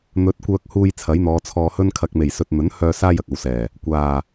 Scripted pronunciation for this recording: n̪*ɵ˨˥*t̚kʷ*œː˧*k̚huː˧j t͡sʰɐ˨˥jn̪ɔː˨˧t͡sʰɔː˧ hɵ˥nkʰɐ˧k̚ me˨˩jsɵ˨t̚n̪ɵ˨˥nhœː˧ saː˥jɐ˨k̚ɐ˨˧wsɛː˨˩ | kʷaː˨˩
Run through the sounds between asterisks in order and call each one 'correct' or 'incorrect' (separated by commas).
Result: correct, correct